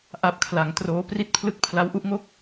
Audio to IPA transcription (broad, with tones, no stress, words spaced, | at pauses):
ʔa˦˥p̚kʰla˩˦ŋtroː˦˥ pri˥˩t̚pʰlɯ˥˩k̚ pʰla˦˥wʔu˦˥ʔŋo˥˩k̚